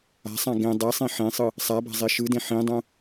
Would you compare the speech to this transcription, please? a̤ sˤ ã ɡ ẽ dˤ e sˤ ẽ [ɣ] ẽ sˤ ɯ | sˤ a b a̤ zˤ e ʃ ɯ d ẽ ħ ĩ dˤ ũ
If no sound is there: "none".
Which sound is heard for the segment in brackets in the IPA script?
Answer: ħ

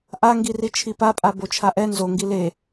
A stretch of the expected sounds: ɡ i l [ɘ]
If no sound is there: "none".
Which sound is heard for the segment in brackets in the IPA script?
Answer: e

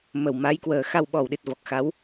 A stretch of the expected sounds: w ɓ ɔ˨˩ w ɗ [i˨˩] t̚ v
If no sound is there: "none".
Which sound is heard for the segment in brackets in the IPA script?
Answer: i˨˩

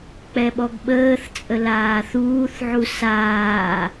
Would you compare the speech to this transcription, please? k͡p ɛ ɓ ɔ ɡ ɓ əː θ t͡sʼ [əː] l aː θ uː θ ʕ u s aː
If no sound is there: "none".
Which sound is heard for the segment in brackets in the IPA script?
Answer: ə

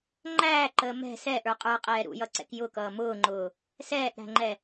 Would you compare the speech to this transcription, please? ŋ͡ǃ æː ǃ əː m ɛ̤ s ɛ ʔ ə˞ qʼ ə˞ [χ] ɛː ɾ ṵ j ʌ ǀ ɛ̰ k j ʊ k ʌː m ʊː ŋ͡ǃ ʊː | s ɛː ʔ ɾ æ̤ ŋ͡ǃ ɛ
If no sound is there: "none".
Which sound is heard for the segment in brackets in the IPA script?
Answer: qʼ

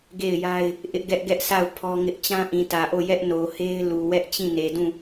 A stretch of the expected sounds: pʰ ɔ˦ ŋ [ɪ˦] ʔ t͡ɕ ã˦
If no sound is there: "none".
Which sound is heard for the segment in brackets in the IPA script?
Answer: ɪ˦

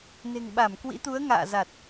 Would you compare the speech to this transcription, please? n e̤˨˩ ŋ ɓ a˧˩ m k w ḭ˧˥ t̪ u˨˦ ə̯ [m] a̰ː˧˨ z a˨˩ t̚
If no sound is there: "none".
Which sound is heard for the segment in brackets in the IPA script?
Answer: ŋ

